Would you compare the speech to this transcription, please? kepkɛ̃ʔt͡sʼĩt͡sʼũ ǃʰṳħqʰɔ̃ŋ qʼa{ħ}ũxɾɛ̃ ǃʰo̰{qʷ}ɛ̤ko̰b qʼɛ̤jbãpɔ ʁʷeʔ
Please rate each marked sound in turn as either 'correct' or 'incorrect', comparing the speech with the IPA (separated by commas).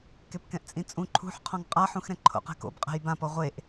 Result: correct, incorrect